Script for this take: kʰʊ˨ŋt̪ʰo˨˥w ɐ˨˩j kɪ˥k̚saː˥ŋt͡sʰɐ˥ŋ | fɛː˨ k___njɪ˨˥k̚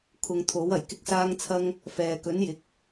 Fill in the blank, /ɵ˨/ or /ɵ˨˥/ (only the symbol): ɵ˨˥